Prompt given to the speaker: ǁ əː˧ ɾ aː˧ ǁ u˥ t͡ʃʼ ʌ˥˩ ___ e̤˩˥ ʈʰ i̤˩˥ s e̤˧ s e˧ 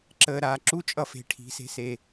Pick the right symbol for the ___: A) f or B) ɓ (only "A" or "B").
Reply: A